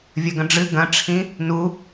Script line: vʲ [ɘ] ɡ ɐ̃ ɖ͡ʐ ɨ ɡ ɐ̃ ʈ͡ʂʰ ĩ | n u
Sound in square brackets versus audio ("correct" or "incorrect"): correct